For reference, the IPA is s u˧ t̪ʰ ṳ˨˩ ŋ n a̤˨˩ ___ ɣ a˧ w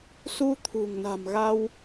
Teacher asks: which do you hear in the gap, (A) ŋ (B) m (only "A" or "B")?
B